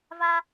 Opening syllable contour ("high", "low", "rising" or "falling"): high